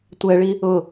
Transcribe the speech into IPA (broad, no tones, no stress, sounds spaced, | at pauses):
tʷ ɛ ɭ i | ʊ